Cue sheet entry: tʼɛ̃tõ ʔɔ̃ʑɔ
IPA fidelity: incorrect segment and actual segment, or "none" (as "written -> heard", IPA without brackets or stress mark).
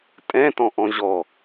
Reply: õ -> ɔ̃